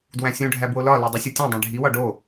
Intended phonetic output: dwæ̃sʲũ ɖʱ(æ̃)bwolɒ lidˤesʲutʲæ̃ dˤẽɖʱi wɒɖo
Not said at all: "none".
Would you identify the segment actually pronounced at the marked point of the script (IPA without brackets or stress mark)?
æ